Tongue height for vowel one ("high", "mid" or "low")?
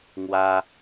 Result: low